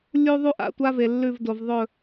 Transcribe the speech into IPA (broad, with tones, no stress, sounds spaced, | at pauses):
lʲ u˦ ðˤ u˦ ʔ a̰˨ tʷ a˦ v e˨ lː ʉ˦˨ v d o˨ v ðˤ ɵ˦˨